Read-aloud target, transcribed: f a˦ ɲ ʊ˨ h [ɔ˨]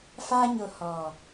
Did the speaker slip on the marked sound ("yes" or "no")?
no